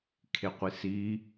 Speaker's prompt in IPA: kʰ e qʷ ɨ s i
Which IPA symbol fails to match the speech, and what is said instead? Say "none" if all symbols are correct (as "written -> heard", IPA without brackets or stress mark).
ɨ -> i